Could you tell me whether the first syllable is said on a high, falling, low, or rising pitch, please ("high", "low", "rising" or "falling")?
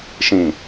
low